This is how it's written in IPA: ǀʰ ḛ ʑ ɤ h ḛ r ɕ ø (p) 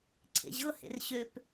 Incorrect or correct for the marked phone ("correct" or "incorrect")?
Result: correct